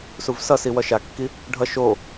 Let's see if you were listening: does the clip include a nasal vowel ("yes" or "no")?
no